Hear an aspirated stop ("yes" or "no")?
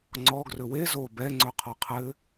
yes